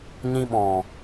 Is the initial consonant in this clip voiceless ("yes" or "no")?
no